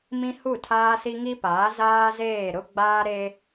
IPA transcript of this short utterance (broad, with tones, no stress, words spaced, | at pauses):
mĩ˦hu˦˨tʰaː˦si˦ ŋi˦paː˨˦ zaː˦zeː˦˨ ɾʊ˦ɡ͡baː˦ɾe˦